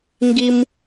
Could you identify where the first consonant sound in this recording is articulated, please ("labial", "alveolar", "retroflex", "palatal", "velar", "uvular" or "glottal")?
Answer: velar